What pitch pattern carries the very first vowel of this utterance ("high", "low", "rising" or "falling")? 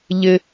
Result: low